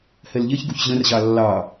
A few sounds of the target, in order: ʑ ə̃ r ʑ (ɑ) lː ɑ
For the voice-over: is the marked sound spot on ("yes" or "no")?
yes